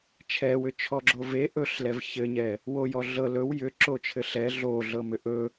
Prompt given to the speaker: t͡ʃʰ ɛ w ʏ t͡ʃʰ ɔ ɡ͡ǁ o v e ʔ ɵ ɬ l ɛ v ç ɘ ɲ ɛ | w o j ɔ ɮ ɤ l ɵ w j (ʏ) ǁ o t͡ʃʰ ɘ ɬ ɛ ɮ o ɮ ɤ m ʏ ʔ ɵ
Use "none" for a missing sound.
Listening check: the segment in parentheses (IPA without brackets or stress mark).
ʏ